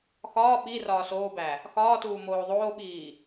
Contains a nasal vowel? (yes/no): no